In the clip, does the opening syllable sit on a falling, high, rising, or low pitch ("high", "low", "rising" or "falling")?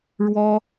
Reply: high